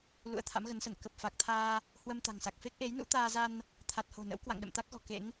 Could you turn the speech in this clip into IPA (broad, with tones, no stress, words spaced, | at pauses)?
lṵ˧˥ə̯t̪ʰa̰˧˥mɣə˨˦nsə˧˩n kə˨˩p̚fa˨˩k̚t̪ʰaː˧ | hwə˧mt̪a̤˨˩ŋsa˨˩k̚ fe˦˥k̚ʔe˨˦jnṵ˧˥ t̪aː˧za˧n | t̪ʰa˨˩t̚ho̤˨˩ nə̰˧˥wkwa̰˧˨ŋ ɗə̰˧˨mt̪a˦˥k̚ɣɔ̤˨˩ kḛ˧˥ŋ